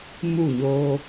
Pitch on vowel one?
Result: falling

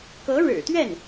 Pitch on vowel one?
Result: rising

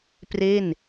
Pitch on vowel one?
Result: falling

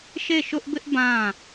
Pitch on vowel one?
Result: falling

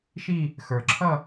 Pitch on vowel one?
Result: falling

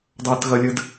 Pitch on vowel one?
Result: high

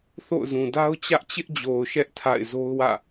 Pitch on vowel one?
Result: falling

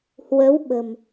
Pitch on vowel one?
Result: rising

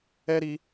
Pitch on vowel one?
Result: high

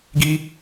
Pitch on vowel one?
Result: high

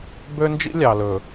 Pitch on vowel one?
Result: high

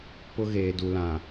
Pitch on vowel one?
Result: high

